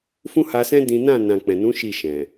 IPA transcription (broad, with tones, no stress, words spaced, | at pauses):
fũ˦ha˧sɛ̃˦ dĩ˦ nã˦˨ nã˨k͡pɛ̃˨nũ˨˦ ʃi˦˨ʃɛ̃˨